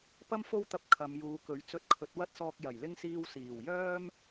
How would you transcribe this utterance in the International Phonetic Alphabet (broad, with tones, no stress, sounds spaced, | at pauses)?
p ɐ˥ m f o˥ w t̪ ɐ˧ p̚ kʰ ɐ˨˧ m j uː˨˧ k ɵ˨˥ ɥ t͡s ɵ˧ t̚ kʰ ɵ˨˥ t̚ w ɐ˥ t̚ s ɔː˧ k̚ j ɐ˨˩ j l ɪ˥ ŋ s iː˧ w s iː˨˩ w j œː˥ m